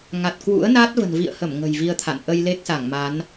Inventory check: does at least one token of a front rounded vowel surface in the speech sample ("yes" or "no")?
no